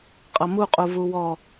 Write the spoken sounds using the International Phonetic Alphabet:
qʼ ʌ m u qʼ u v u w ɔ

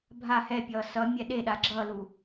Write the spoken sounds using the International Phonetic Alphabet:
bʱ a h ɛ pʲ ʌː s ʌ mʲ ɛ ɗ e ɗ a ɡ͡ǁ ʌ l u

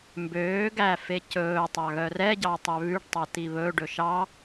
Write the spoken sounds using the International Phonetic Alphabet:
m b øː ɡ æ f e c ɵː tˤ ɑ ɣ œ r ɛ ɟ ɑ tˤ ø β ʉ ɖ tˤ ɑ t i β ɵ ɖ ɵ ʃ ɑ

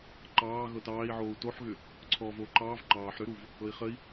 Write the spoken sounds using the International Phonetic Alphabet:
ǃ ɑː ɣ ɤ t ɑː i̯ ʕ oː u̯ t o ħ ɣ ʏ | ǀʰ ɔː v oː ǃ ɑː v ǃ ɑː ħ ɾ ʏ ɾ u v | ɤ i̯ χ ə i̯

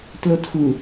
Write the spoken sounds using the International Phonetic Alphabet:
t l o t x u

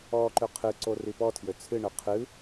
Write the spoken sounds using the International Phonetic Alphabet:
ɔ ǃ ø qʰ ɨ ǀ o r i p ɔ tʰ j ø t͡sʰ ɨ ɳ ø qʰ ɨ

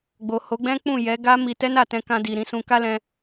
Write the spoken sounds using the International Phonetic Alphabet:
ɡ͡b o˨ h o˨˦ ɡ͡b ɛ̃˦ k͡p ũ˦˨ j ɛ˨˦ ɡ a˦ m i˧ t ɛ˦ n a˦˨ t ɛ̃˧ k ã˧ d i˨ ɾ ĩ˨˦ s ũ˧ k a˦ l ɛ̃˧

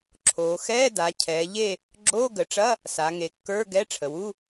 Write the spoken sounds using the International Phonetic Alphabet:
ǁʰ oː˩˧ x ɛː˧˥˧ d a˩˧ cʰ ɛː˩˧ ʎ e˦˨ | ɡ͡ǁ oː˧˥˧ ɡ ə˩˧ ʈ͡ʂ ɐ˧˥˧ | s a˩˧ ŋ e˩˧ kː ə˞˧˥˧ ɡ ɛ˧˥˧ ʈ͡ʂʰ ə˩ w u˧˥˧

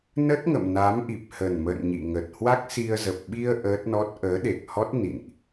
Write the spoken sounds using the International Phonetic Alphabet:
n ə˦˥ t̚ ŋ ə̰˧˨ m n a˨˦ m ʔ i˨˩ p̚ h ə˨˩ n m ə̰˧˨ n ɲ ḭ˧˨ ŋ ə˨˩ t̚ h w a˦˥ k̚ s i˧ ə̯ z ə˨˩ p̚ ɓ i˧ ə̯ ʔ əː˦˥ t̚ n ɔ˦˥ t̚ ʔ əː˨˦ ɗ e˨˩ k̚ h ɔ˦˥ t̚ n ḭ˧˨ n ʔ

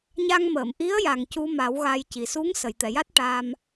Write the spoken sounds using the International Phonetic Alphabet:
ɲ a˧ ŋ m əː˨˩˨ m ʔ i˧˥ ə̯ j a˨˩ ŋ c u˧ m a˨˩˦ w ɣ a˧ j c i˨˩ s u˧˥ ŋ s ə˨˩˨ j t̪ ɛ˨˩˨ j a˦˥ t̚ ʈ a˧ m

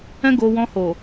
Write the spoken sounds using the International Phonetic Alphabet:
ɛ̃˦ ɡ o˧ w ɔ̃˧ h o˨

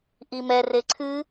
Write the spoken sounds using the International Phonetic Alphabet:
ʔ i m ɛ r e ǀʰ ɨ

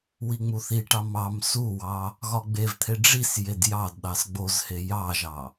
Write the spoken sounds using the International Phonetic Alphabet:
w i ŋ͡m u θ i ʈ ɑ m ɑ m s u w ɑ | ɣ ɒ ɡ͡b e v t̪ʰ e ɖ͡ʐ i s j e d j ɑ d ɗ ɑ s ɡ͡b o z h e j ɑ ʒ ɑ

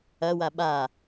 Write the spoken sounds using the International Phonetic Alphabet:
ɐ w a ɓ a

